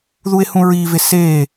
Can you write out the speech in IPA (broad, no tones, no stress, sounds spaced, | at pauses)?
ð u e̯ h ũ ɹ i v e s e